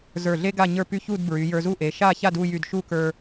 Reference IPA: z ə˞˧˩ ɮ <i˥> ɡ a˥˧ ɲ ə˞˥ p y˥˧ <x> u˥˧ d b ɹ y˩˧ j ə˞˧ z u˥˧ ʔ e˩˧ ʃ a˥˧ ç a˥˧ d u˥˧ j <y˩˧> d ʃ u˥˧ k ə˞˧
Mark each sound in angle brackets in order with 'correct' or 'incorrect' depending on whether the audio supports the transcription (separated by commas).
incorrect, incorrect, incorrect